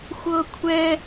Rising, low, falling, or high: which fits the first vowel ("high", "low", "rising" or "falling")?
high